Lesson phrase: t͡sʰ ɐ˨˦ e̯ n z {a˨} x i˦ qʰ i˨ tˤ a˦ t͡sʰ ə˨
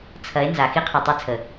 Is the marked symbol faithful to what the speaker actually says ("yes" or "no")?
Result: yes